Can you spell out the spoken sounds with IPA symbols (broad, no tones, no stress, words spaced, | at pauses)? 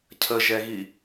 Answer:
cʰəʒɛɣi